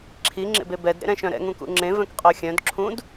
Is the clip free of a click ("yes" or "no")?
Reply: no